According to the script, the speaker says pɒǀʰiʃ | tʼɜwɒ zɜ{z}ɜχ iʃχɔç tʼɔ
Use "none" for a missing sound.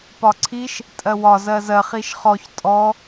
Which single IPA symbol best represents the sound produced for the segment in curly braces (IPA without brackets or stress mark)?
z